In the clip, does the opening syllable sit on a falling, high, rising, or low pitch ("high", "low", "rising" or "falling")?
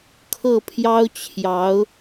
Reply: falling